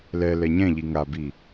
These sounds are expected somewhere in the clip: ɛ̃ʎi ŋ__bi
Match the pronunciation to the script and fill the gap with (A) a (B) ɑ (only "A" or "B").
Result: A